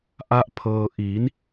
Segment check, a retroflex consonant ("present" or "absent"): absent